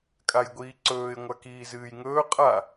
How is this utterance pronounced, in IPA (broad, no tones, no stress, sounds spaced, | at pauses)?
kʼ a j ɡʷ iː ǀ ɵː ɪ̯ ŋʷ a k iː z ɨː j ŋ ɵː qʼ a